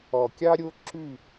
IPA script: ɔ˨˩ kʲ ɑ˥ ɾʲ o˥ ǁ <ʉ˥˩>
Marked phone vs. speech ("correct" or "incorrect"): incorrect